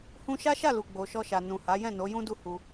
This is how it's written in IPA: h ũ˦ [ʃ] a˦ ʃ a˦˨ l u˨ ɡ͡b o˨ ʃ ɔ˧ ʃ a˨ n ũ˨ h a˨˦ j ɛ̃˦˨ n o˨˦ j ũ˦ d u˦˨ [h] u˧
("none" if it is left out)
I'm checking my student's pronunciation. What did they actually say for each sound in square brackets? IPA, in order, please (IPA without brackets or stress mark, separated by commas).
ʃ, h